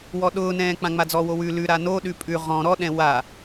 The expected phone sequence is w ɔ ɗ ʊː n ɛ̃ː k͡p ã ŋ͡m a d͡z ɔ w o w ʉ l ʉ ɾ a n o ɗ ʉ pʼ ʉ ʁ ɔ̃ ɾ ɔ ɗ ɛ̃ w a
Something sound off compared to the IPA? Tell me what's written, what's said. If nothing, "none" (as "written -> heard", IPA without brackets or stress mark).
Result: none